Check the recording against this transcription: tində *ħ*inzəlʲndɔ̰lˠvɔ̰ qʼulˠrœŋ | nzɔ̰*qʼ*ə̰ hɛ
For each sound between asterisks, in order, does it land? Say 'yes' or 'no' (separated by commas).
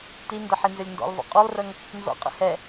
yes, yes